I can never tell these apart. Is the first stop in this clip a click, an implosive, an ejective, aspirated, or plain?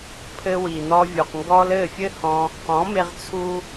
aspirated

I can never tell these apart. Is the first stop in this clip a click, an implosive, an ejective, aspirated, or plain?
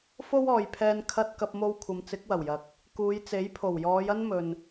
aspirated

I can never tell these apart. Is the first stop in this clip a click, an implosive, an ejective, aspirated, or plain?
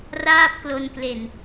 plain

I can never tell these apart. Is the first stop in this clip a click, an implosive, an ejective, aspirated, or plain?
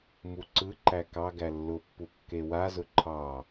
click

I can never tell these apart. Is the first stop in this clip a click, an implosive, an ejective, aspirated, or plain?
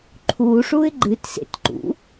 click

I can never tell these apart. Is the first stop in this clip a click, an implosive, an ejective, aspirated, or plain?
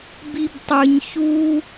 plain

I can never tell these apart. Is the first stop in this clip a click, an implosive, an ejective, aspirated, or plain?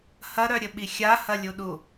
implosive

